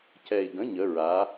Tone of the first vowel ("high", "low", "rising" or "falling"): low